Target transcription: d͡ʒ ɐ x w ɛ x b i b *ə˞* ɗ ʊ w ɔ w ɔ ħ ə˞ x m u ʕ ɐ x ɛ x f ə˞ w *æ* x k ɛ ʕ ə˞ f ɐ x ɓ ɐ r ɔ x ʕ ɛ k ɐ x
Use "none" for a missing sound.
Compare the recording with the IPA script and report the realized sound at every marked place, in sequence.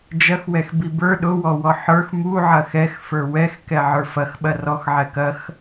ə˞, ɛ

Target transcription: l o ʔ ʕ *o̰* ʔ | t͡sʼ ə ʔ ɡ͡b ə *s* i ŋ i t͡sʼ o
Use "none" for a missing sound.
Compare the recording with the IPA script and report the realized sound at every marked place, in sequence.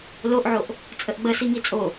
o, s

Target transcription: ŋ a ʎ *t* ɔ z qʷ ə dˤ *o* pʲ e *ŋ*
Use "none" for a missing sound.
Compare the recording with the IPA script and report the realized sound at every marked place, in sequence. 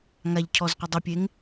cʰ, o, ŋ

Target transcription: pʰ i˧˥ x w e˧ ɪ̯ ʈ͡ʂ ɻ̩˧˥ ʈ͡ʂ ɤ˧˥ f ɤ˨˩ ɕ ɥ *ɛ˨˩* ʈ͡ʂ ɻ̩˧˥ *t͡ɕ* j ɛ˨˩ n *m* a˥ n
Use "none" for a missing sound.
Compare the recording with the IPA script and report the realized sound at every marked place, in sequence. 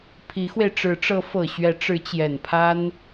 ɛ˧˥, t͡ɕ, pʰ

